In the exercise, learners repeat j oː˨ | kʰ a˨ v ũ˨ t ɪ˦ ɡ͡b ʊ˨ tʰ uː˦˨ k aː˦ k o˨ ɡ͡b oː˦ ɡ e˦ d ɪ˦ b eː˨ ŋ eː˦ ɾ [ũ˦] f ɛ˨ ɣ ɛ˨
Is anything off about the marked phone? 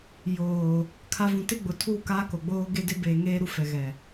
yes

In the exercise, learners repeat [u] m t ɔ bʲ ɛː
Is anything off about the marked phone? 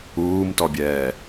yes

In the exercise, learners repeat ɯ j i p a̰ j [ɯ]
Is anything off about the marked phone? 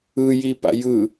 no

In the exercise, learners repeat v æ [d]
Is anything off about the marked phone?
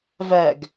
yes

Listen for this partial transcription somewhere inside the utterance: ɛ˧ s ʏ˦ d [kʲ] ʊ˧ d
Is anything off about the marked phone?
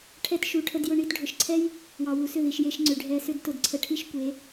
yes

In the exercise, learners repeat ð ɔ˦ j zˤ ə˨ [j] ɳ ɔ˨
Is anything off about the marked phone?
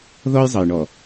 no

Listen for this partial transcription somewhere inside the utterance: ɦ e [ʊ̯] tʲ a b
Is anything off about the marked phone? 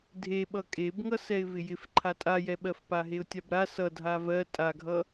no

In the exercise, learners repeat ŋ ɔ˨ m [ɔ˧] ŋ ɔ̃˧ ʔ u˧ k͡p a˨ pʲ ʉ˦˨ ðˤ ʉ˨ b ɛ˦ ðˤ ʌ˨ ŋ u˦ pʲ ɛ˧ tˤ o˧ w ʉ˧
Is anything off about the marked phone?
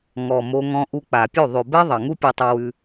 yes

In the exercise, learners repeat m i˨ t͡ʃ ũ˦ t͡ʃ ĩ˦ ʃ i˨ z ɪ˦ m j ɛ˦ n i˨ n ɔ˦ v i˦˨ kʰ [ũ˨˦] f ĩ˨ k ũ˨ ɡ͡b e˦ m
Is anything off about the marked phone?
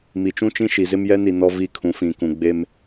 no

